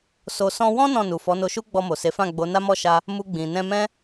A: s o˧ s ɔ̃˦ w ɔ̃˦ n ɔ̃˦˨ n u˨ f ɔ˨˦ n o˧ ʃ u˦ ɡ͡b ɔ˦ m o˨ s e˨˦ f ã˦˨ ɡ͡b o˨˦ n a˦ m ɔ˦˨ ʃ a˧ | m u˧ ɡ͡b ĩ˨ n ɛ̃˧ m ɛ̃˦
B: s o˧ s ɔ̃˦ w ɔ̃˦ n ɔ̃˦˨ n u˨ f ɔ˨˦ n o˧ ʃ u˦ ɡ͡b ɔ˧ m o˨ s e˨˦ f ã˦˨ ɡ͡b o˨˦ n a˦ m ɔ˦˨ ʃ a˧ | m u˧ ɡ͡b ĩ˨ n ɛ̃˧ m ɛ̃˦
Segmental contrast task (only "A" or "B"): B